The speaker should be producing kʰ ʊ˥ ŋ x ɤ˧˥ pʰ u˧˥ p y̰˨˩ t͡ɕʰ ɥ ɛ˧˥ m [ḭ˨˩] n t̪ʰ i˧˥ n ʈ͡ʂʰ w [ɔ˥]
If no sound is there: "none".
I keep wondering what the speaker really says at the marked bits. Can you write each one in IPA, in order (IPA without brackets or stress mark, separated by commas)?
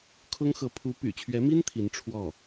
i˥, ɔ˥˩